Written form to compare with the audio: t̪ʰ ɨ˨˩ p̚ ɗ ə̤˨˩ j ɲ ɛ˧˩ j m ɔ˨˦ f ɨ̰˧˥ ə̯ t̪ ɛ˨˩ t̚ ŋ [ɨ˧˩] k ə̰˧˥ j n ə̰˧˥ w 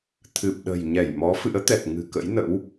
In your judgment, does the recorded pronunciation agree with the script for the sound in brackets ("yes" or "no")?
no